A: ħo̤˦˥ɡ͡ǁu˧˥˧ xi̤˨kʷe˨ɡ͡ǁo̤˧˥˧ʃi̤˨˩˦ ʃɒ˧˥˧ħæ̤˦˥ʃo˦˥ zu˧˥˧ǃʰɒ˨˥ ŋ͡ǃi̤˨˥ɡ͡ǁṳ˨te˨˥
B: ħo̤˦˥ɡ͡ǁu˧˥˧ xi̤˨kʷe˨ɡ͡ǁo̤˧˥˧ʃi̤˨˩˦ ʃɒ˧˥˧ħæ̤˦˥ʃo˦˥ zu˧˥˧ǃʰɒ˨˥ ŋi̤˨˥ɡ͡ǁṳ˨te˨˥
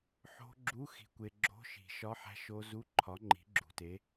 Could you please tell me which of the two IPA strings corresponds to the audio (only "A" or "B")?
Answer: A